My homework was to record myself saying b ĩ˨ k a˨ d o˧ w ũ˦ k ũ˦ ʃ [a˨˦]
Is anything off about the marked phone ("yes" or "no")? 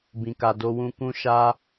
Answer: yes